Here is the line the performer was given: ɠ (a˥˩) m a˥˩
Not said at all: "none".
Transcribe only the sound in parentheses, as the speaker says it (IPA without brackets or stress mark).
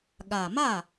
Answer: a˨˩